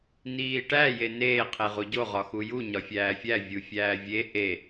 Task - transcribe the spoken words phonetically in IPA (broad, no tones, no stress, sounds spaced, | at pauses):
n iː ʈ æ j e n eː qʰ e ʁ u ɟ o ʁ ɒ x u j u ɲ ɒ fʲ æː fʲ æ vʲ u fʲ æː vʲ e ʔ e